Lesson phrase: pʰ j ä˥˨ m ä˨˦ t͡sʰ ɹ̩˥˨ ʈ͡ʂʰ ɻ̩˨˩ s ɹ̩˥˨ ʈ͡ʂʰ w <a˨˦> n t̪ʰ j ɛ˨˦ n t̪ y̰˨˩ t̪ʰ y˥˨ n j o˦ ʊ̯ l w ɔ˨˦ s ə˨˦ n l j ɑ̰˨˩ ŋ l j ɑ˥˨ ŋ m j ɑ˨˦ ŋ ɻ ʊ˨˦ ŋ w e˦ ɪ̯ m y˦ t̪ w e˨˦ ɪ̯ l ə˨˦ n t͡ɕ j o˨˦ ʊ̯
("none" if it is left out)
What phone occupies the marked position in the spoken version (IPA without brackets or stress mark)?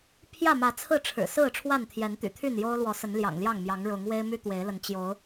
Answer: a˥˨